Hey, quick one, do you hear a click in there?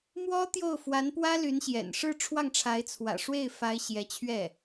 no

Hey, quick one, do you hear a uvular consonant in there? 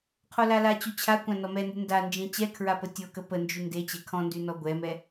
yes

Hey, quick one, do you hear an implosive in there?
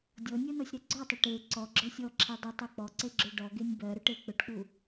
no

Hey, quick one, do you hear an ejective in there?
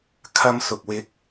no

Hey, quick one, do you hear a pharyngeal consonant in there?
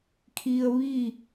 no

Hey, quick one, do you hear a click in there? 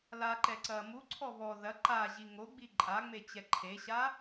yes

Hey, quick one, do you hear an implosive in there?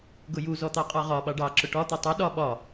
yes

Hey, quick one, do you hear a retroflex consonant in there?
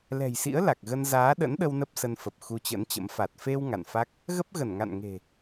no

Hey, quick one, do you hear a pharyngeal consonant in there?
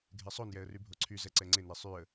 no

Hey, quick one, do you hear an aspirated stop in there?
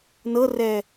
no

